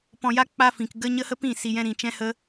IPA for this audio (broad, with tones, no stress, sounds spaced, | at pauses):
p ɔ̃˧ j a˦ k͡p a˦ f ĩ˨ k ɡ ə˦ ɲ ə˦ h ə˦ p ĩ˦˨ s i˧ j ɛ̃˦ ɾ ĩ˧ t͡ʃ ɛ̃˦ h ə˦